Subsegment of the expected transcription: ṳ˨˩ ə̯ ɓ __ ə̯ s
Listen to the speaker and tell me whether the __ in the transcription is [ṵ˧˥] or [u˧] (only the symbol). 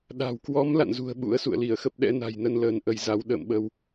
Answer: ṵ˧˥